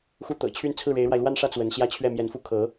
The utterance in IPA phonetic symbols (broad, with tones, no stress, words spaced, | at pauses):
xu˥˩t̪ɤ̰˨˩ t͡ɕʰy˥˧nt͡sʰɹ̩˥˩ɻe˧˥ɪ̯ɻwa˧ɪ̯ lwa˥˧nʂä˥˩ t͡swə˧˥n ɕjä˥˧t͡ɕʰɥɛ˥˩mjɛ˧˥n fu˥˩kʰɤ˧˥